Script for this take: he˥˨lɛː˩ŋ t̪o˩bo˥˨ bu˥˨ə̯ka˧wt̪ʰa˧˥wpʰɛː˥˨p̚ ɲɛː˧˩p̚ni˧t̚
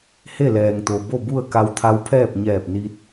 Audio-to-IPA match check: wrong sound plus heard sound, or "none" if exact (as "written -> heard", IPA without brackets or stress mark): none